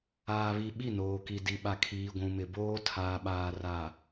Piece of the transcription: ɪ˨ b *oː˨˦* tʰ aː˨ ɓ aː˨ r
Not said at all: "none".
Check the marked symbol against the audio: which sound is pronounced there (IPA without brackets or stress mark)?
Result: oː˦